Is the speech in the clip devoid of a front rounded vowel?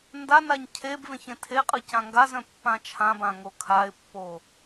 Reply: no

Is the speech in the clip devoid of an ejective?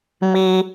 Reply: yes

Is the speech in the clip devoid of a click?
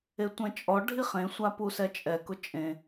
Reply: yes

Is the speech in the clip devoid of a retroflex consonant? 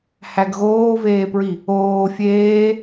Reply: yes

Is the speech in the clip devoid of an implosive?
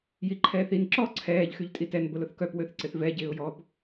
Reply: yes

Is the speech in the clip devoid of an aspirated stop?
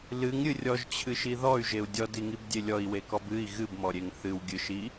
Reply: no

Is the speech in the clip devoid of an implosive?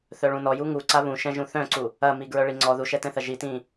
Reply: yes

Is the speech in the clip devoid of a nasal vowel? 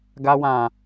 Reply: no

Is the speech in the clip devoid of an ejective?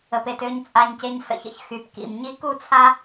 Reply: no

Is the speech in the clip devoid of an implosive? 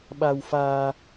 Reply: no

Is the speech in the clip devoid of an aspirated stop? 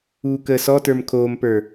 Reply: no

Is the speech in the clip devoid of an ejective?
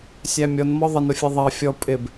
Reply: no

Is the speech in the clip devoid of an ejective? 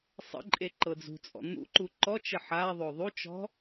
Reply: no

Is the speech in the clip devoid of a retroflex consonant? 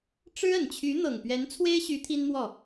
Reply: no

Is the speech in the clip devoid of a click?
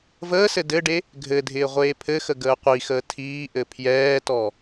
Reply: yes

